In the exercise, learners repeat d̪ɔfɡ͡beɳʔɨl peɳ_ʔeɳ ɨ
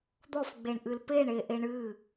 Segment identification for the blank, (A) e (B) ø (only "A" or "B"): A